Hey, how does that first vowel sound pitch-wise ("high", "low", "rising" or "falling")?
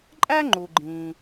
high